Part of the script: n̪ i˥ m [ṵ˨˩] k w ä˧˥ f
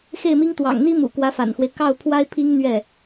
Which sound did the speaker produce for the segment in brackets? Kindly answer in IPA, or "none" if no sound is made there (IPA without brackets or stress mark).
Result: ṵ˨˩